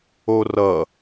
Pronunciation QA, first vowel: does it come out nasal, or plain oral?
oral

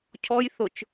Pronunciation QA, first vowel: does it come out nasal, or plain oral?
oral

